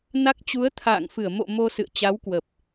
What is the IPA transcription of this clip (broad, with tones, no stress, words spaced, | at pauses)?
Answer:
na˦˥k̚ t͡ɕu˨˦ə̯t̪ʰa̰ː˧˨ŋfɨ˧˩ə̯ mo̰˧˨ mo˧sɨ̰˧˨ə̯ t͡ɕa˨˦wkwə˨˩p̚